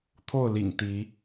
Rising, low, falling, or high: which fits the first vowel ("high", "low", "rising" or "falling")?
falling